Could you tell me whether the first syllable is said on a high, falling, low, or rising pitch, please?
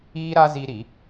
high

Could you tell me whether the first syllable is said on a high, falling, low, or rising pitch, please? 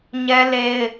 high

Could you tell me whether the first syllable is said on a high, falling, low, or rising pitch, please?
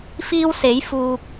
high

